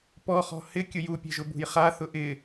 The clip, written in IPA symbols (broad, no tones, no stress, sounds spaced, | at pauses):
p ɔ χ ɔ̤ h ɪ kʲ ʊ j u pʲ ɛ̤ ʒ ʊ b ṳ j χ a θ ʊ ʔ ɪ